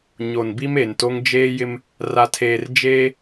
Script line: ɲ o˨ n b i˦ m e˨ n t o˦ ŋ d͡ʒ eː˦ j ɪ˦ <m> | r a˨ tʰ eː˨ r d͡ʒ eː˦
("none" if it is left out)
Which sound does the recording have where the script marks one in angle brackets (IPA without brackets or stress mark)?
m